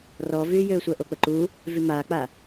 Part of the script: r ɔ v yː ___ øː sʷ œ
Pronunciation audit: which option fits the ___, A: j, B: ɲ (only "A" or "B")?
A